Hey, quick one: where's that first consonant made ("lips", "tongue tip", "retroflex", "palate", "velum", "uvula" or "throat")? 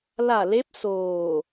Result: tongue tip